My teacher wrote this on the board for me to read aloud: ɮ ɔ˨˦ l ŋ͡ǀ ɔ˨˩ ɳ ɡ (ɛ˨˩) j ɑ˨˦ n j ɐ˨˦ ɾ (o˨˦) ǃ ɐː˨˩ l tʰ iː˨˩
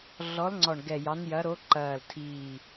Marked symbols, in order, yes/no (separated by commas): yes, yes